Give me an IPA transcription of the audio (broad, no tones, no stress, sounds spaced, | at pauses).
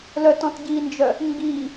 l œ t ɔ̃ t ɟ i n d͡ʒ œ | ŋ ɡ i